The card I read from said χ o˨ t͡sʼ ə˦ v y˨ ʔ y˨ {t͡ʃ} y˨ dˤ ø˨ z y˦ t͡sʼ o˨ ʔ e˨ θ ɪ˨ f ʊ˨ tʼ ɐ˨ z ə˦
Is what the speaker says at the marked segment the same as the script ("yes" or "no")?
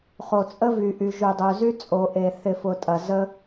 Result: no